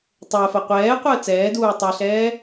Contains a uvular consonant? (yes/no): yes